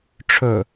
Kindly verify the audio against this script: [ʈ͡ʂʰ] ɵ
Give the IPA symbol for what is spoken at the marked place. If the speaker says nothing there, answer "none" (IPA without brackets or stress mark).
ʈ͡ʂʰ